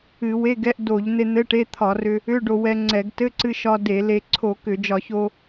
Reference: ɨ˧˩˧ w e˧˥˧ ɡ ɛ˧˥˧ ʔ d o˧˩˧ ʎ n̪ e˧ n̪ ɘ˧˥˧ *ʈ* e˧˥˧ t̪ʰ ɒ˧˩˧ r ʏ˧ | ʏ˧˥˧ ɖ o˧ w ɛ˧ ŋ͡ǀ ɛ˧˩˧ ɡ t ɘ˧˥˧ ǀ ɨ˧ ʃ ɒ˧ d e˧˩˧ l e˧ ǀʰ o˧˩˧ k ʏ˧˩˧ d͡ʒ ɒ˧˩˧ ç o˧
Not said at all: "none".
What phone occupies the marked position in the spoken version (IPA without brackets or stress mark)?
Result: ʈ